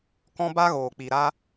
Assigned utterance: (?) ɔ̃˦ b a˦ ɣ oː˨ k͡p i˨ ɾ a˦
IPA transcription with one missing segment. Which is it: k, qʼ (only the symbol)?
k